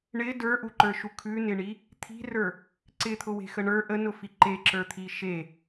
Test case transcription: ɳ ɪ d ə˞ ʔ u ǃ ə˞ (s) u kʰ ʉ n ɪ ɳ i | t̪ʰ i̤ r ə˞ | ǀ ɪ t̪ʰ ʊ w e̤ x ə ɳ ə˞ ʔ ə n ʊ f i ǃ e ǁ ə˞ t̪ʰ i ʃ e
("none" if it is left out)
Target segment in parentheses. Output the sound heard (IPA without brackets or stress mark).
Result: ʃ